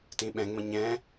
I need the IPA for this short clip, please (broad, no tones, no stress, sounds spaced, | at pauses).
t ĩ ɓ ɛ̃ ŋ͡m ə̃ ɲ ɛ̃